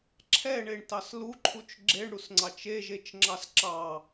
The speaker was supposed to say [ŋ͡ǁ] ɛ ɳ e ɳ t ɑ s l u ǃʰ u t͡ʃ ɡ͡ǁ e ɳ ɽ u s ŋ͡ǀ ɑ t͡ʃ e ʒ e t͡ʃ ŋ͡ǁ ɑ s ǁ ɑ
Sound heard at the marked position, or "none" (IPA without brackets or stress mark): ǁʰ